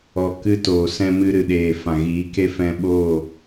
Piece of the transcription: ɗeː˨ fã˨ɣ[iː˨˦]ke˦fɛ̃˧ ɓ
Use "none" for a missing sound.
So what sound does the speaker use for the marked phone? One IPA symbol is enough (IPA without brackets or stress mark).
iː˨˦